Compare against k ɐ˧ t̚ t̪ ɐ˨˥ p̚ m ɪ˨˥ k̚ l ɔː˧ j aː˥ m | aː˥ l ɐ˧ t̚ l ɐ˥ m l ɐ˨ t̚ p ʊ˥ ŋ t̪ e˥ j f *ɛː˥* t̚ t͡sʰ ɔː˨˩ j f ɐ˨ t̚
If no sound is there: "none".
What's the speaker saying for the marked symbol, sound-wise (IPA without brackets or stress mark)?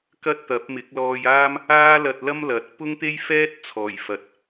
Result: ɛː˥